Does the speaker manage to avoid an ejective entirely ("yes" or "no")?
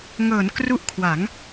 yes